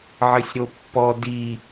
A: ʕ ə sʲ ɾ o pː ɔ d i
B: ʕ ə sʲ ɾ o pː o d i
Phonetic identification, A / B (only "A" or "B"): A